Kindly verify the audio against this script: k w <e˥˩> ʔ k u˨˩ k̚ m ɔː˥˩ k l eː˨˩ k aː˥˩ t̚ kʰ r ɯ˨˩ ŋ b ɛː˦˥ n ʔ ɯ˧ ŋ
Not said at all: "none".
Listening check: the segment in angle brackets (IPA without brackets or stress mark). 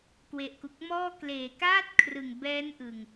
e˨˩